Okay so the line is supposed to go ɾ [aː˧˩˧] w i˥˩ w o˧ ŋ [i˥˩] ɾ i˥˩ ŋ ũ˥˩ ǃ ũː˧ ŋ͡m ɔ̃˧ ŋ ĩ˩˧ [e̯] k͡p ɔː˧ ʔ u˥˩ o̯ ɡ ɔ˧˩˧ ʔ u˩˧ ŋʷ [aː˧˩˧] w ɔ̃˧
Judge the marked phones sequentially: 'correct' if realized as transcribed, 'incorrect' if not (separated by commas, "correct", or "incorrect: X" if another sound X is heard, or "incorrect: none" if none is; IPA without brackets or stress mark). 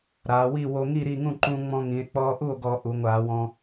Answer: incorrect: aː˩˧, correct, correct, correct